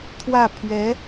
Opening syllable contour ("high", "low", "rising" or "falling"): falling